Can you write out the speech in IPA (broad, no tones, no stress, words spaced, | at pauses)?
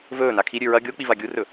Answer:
vɵː nakʰiɾʲʉ ɹɐ ɡʲo k͡pivaɡʲurɵ